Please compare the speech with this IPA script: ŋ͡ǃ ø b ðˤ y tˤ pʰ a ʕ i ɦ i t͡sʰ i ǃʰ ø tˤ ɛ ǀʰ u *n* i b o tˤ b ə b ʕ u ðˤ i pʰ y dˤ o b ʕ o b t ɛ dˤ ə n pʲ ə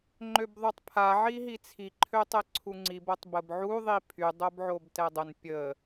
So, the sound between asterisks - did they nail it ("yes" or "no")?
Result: no